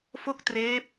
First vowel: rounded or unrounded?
rounded